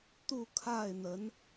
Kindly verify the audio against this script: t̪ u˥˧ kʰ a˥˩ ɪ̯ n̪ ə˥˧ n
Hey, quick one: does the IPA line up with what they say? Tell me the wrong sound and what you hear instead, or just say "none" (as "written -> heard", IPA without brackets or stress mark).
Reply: ə˥˧ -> ə˧˥